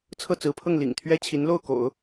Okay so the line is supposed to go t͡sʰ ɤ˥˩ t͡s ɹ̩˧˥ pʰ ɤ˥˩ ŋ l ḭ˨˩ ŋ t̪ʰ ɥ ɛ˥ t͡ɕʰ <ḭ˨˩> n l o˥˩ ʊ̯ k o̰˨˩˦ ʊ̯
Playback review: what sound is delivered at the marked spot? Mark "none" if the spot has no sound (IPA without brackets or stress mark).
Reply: i˧˥